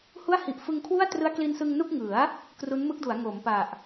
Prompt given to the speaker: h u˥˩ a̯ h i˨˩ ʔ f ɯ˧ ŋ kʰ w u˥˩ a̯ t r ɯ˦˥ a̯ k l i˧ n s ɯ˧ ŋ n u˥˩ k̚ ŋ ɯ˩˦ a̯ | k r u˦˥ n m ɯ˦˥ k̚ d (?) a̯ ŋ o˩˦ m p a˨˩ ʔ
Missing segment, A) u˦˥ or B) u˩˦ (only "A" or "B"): B